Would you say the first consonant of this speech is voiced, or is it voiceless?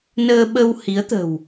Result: voiced